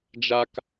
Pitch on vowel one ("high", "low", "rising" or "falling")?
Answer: high